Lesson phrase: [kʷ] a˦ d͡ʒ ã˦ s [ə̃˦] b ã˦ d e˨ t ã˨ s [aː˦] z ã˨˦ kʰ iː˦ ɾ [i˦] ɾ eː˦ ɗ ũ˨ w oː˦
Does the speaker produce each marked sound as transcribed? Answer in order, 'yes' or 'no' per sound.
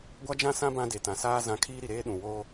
no, no, yes, no

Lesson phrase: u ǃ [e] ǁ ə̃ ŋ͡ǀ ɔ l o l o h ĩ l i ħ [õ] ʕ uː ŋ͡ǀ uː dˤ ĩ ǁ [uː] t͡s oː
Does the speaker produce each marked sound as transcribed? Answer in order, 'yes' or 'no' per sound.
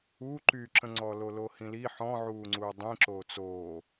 no, no, no

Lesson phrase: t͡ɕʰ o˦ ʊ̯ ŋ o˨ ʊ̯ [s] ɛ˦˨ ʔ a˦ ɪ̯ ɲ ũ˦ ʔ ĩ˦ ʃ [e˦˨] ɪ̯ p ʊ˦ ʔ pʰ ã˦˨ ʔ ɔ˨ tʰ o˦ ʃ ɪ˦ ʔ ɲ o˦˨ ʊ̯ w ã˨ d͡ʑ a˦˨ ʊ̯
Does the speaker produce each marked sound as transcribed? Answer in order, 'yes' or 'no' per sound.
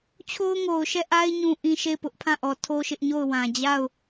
no, yes

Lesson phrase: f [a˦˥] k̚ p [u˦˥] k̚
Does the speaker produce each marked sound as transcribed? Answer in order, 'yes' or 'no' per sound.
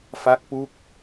yes, yes

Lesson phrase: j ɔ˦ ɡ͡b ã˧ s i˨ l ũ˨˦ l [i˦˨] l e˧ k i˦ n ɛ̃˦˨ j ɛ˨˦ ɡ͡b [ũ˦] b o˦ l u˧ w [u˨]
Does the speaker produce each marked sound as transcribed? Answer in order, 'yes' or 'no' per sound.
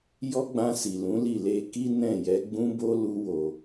yes, yes, no

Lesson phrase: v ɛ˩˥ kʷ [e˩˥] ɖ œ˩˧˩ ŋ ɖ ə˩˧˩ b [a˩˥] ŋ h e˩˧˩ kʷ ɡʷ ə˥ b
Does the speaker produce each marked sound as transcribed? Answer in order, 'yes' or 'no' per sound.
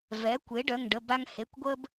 yes, no

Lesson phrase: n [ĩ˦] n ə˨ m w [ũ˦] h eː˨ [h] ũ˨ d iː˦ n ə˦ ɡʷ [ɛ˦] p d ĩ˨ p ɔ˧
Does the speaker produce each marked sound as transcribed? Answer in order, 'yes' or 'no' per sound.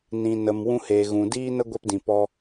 no, yes, no, yes

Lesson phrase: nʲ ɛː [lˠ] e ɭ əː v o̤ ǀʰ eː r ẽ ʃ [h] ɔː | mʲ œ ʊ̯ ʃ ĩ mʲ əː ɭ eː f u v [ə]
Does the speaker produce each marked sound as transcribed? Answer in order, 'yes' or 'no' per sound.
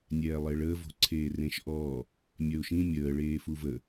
yes, no, yes

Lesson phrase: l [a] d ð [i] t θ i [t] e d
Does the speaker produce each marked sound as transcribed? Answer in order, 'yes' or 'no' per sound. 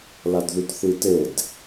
yes, no, yes

